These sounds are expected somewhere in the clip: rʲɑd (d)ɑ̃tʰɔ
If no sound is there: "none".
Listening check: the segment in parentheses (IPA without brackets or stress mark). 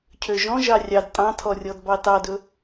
tʼ